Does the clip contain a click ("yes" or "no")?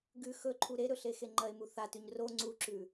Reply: yes